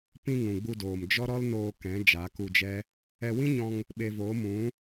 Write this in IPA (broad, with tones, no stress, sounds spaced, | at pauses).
p ĩ˧ ŋ ũ˨ ɡ͡b u˧ d oː˨ m d͡ʒ ɔ˦ ɾ ɔ˦ l n oː˧ k ɛ̃˨˦ d͡ʒ a˨˦ k u˧ d͡ʒ ɛ˦ | ɛ˧ w ĩ˦ ɲ ɔ̃˧ ŋ | ɓ e˧ v oː˨˦ m ũ˨˦